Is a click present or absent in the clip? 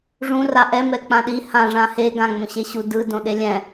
absent